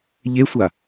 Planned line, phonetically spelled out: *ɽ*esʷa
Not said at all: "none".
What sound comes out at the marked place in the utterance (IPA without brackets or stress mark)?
ʎ